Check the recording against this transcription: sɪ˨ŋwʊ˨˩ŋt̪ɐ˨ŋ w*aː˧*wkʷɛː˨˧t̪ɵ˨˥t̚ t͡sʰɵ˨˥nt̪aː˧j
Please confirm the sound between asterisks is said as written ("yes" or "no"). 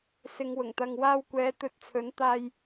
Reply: yes